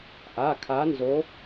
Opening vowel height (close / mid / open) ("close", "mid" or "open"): open